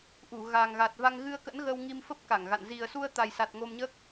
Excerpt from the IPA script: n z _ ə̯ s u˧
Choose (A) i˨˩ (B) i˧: A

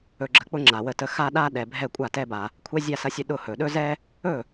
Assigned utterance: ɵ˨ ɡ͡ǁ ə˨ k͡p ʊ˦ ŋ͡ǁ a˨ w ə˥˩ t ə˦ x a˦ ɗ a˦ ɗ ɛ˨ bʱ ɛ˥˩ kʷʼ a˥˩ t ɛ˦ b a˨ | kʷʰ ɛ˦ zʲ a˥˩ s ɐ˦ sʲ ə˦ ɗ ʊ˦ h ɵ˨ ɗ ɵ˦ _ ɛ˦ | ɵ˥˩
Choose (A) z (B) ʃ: A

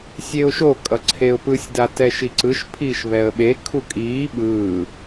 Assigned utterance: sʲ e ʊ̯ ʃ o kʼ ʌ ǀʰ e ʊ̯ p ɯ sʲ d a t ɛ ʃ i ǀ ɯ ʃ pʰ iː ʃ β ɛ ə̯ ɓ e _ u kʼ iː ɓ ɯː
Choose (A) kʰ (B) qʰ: A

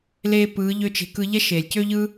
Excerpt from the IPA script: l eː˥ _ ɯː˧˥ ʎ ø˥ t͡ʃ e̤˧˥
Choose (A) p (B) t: A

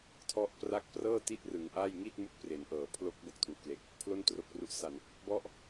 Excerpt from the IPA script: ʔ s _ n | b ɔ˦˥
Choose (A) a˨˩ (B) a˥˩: A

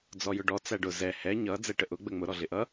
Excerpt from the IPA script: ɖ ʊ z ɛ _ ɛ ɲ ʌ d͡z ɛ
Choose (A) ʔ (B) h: B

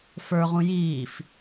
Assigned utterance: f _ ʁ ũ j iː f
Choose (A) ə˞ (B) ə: A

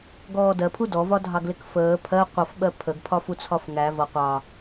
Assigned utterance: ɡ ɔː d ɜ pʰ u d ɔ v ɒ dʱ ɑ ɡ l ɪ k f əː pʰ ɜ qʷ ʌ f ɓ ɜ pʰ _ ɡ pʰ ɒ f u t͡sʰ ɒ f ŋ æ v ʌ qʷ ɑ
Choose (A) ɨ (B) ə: B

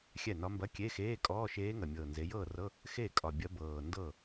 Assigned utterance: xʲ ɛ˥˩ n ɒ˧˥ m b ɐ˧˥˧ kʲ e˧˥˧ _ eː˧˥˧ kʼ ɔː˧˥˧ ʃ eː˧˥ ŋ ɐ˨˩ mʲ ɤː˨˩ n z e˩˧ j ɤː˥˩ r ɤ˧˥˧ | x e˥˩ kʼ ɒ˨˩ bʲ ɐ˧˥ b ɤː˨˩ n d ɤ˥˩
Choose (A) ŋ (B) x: B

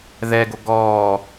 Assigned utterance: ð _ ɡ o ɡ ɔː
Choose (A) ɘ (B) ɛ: B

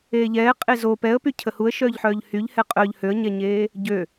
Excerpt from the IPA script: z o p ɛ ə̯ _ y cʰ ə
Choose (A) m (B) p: B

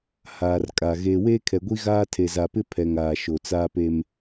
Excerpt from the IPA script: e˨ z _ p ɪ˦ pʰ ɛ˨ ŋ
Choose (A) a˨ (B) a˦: A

